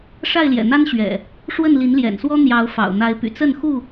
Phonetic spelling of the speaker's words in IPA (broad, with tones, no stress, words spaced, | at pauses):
ʂa˥˨ɪ̯ljɛ̰˨˩n̪a˦n ɕɥɛ̰˨˩ | ʂwə˥˨nli˨˦nljɛ̰˨˩nswɔ˦ n̪jɑ˨˦ʊ̯ fɑ̰˨˩ʊ̯n̪a˨˦ɪ̯py̰˨˩ t͡sə˥˨nxu˥˨